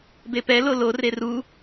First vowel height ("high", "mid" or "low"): mid